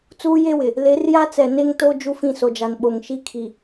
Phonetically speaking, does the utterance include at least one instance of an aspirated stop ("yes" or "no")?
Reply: yes